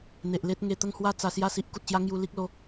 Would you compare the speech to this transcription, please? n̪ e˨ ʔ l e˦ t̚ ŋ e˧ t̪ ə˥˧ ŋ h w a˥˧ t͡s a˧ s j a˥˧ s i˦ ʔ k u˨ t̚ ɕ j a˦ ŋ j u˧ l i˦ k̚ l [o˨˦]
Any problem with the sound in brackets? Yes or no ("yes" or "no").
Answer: yes